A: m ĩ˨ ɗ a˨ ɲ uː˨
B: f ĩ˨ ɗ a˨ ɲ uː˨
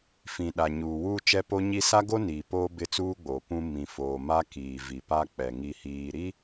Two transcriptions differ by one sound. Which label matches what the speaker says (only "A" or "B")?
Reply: B